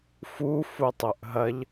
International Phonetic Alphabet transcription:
fu futˤɵʔɦɐʎ

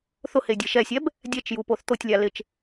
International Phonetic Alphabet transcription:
θʊhe dʲeʃɛsʲɛb | dʲɛt͡ʃju poθt̪otʲlʲa lɪt͡ʃ

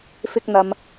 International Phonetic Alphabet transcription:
fɪ˧k̚n̪ɐ˨m

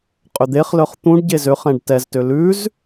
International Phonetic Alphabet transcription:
qʼʏd̪eχlœχ t̪ũɖɟez øχɛ̃ɖ tɛztø lʉz

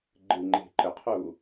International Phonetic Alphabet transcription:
ɡ͡ǃɨ ŋ͡ǃe̤ǃəqʰu

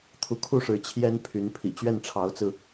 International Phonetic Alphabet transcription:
t̪ʰu˧˥kʰu˥˩ʂɻ̩˧˥ t͡ɕʰjɛ˥npʰy˧˥n pʰḭ˨˩ t͡ɕɥɛ˥˩nʈ͡ʂʰɑ˧˥ʊ̯t͡sɹ̩˧

